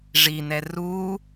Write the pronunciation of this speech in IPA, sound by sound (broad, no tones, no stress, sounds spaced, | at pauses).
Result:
ʐ i n ɛ r u